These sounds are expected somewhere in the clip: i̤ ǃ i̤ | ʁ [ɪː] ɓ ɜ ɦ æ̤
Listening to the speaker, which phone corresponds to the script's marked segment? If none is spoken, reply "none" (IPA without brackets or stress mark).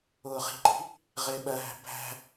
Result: ɪː